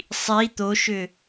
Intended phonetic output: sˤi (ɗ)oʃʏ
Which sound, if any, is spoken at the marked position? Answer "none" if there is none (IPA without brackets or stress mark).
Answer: t̪